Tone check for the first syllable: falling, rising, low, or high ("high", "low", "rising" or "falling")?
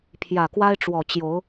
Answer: low